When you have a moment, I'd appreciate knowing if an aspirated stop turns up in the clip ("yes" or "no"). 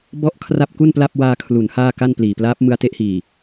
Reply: yes